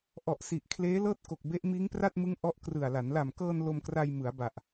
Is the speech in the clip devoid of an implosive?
yes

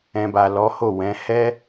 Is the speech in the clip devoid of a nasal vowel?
no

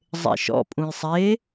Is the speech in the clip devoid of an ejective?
no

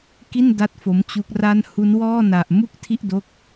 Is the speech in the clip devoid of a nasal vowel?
yes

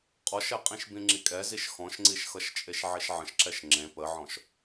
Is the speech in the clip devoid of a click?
no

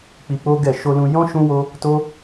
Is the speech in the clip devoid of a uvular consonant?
yes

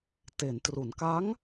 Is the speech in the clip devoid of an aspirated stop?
yes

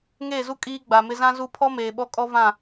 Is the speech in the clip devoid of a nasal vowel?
no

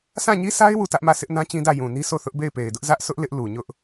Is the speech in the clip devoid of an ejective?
yes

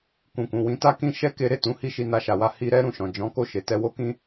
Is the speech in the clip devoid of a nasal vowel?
no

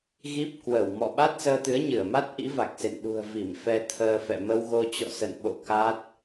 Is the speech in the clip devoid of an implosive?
no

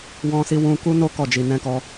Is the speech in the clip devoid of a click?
yes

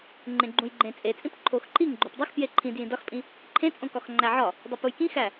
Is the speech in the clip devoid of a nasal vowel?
no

